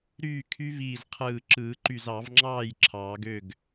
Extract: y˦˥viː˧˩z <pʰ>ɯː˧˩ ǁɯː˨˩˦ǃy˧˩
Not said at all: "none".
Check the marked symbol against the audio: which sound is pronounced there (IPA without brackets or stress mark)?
qʰ